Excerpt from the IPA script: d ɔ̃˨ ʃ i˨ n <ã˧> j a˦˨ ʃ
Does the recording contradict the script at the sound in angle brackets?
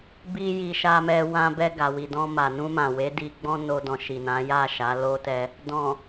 yes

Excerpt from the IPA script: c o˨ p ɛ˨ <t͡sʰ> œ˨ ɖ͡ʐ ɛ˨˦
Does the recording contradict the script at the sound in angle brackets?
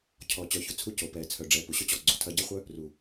no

